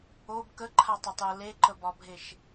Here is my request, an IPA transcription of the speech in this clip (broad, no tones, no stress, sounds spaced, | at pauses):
o b k ə ǃʰ a tˤ e tˤ j ə l e ǃ ə b ɒ bʱ e ʃ